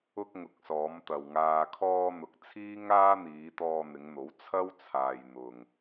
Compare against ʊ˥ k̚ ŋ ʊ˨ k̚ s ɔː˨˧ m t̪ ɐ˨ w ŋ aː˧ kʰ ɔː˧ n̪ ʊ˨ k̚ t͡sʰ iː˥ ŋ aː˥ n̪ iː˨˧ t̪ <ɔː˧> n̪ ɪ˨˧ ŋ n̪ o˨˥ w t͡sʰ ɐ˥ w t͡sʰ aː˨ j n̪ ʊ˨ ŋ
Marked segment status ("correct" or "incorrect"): correct